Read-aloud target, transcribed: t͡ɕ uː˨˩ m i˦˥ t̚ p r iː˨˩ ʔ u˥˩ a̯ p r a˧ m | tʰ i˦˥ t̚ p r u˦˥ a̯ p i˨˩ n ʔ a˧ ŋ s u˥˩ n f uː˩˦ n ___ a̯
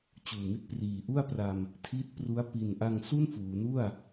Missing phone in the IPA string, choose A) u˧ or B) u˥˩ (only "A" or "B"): B